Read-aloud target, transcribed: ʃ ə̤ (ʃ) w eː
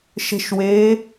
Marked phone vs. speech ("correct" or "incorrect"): correct